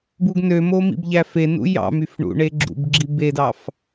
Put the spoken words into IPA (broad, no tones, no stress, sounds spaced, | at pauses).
b u ɡ n ø m o m ḭ b ʎ æ f e n ṵ j ɑ̰ m y f ɳ ṵ ɳ e ɡ͡ǁ ṵ b ɡ͡ǁ i b e d ɑ f